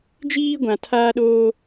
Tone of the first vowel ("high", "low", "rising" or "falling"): high